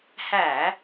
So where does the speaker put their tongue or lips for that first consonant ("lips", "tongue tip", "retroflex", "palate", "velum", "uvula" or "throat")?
throat